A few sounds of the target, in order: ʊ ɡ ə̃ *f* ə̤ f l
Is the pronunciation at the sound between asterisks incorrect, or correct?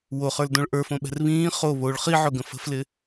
correct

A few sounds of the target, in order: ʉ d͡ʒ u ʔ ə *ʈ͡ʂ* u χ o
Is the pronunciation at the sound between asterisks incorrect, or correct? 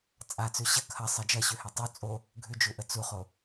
incorrect: t͡s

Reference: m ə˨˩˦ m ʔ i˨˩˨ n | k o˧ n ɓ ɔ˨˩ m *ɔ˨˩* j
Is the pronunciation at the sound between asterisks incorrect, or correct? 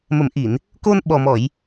incorrect: ɔ˨˩˨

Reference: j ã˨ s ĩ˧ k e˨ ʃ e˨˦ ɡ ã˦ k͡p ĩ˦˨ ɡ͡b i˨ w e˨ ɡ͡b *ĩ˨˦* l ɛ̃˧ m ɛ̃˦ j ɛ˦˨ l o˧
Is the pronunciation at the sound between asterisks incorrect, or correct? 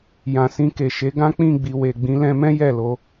correct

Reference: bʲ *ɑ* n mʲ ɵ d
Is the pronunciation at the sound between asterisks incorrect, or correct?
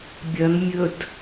incorrect: ɐ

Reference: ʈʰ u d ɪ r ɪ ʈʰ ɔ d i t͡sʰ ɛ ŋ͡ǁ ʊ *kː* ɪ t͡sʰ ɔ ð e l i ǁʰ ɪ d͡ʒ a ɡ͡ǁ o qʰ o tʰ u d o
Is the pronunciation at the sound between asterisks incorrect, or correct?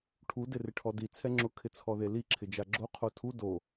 incorrect: kʰ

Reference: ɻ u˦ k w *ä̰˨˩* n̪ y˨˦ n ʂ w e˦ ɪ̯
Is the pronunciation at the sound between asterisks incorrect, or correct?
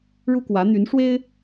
incorrect: ä˨˦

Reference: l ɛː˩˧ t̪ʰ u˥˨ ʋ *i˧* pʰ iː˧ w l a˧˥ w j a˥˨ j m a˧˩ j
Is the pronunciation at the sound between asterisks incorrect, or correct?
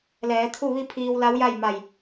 incorrect: i˥˨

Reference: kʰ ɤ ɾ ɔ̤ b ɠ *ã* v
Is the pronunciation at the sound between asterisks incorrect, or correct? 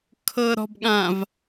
correct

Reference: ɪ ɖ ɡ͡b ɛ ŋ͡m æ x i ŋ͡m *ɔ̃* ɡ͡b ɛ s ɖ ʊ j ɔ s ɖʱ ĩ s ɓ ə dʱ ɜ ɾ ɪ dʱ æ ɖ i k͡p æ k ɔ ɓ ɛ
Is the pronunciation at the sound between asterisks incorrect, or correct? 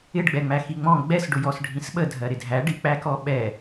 correct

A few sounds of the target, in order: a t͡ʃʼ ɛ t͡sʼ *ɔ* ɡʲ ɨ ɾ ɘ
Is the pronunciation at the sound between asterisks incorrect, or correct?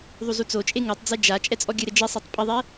correct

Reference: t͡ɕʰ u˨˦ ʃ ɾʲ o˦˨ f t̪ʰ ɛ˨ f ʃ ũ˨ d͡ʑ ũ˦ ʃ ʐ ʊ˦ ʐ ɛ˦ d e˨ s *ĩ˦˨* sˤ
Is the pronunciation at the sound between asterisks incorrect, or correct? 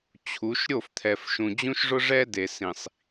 incorrect: ĩ˨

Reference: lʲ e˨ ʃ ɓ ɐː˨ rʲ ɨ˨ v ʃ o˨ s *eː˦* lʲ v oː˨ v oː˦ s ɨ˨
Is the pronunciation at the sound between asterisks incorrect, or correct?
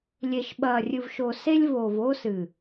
incorrect: e˦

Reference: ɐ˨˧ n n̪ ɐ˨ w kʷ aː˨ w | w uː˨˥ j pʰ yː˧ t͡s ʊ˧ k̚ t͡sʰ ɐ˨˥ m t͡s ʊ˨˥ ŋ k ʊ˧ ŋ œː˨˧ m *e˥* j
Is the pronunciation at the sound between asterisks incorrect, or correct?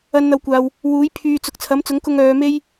correct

